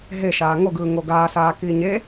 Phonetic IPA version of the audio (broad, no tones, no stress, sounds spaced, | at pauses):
ɦ e ʃ aː ŋ o ɡ ɯː ŋ o ɡ aː s aː k iː ɲ e